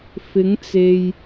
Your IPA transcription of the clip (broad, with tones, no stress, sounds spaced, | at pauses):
f ɪ˨˧ ŋ t͡s e˨ j